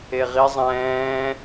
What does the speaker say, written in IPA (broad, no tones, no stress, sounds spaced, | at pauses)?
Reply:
e ʁ i zˤ ɛ̃ː